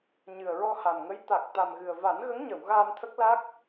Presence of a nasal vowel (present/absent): absent